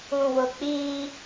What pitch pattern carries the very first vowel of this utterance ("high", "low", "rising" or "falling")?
low